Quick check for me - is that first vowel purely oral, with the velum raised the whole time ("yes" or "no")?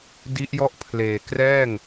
yes